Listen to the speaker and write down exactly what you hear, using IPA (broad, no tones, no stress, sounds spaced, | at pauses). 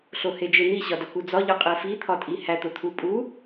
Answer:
ɬ o h e d͡ʒ e n̪ i ɕ ɒ d ɒ k u d͡z ɒ ʎ ɒ qʼ e f i t̪ʰ ɒ tʼ i h æ t̪ o t̪ʰ u pʼ u